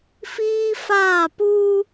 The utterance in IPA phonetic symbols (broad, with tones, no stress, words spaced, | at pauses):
fiː˦ faː˦˨puː˦